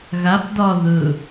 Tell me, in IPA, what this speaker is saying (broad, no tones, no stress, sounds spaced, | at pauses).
ɣ a p d ɒ ð ɵ